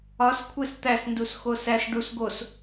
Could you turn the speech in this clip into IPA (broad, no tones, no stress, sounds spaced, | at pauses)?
ɒ s kʷʰ e s t̪ æ s n d u s x o s æ s ɖ u s ɡ o s